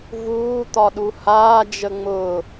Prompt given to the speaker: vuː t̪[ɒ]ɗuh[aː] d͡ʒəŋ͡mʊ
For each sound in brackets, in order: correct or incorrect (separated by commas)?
correct, correct